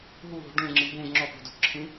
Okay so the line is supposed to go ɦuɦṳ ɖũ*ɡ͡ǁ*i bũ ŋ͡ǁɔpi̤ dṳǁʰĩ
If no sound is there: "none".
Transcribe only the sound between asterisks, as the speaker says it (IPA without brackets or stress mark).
ŋ͡ǁ